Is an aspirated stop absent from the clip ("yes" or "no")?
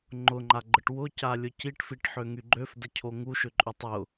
no